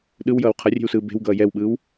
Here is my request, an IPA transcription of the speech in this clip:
ɗ ɯ w j ʌː w qʰ ʌ rʲ e̤ w s ɯː b e̤ w ɡ ʌː j ɛ w ɓ ɯː w

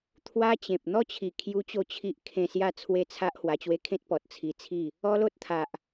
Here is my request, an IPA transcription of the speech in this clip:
t̪ʰ w a˦ t͡ɕ ẽ˨ p̚ n̪ ɔ˥˧ t͡ɕʰ i˨˩ kʰ j u˦ t͡ɕ o˥˧ t͡ɕʰ i˦ ʔ kʰ ẽ˧ s j a˥˧ t͡sʰ w e˦ t͡sʰ a˦ ʔ h w a˧ t͡ɕ w e˥˧ kʰ ẽ˦ t̚ p ɔ˨ t̚ t͡sʰ i˧ t͡sʰ i˥˧ | ɔ˦ l o˦ t̚ t̪ʰ a˨ ʔ

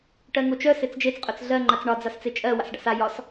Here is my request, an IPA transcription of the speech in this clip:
ʈ ɜ ŋ o t͡ʃ œ s e t͡s d͡ʒ e t͡s qʼ œ t͡s ɮ ɜ ŋ͡ǃ a t͡s ɳ ɒ d͡z a s t͡s e t͡ʃʼ ɜ w a̰ s ɖ a̰ s a j ɒ s

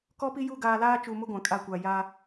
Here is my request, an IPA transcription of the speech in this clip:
k ɔ˦ p i˦ j u˦˨ ɡ aː˨ l aː˦ t͡ʃ u˨ m ʊ˦ ɡʷ ã˨ kʼ a˦˨ kʷ a˨ j a˦

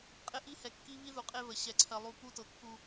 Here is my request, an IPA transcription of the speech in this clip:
qʼ ɪ˦ ʔ i˦ h ɛ˨ kː i˦ β i˦ ð u˨ qʼ e˦ β ə˨ ɕ ɛ˨ ǀʰ ɜ˨ lˠ u˨ p u˦ t ɤ˨˦ kː u˦

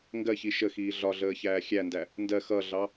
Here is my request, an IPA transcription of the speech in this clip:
ŋ ɡ ɜ ç i ʃ ə x iː ɮ ɒ ɮ əː ç æː xʲ æ n d æ | n d ɜ x ʌ ɮ ɑ

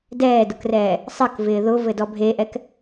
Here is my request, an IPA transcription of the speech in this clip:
d ɛː d ʊ k r ɛː | sˤ ɘ k v ɪː ð ʊ v ɘ d ɔ bʱ e ʔ ɛ k

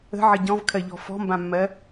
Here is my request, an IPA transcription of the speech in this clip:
ə̤ ʕ ə ɟ ɔ̃ v kʰ ɜ ʎ ɔ̤ f ɔ̤ m b ã mː ɜ

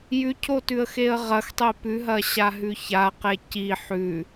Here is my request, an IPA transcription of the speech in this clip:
j ʉ cʰ o t ʉ ə̯ x e ə̯ ʁ ɐ x tˤ e p ʉ ɦ ɐ ɕ a ɦ ʉ ç a q e c i ħ ʉ

